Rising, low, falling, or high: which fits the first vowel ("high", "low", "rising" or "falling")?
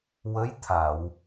rising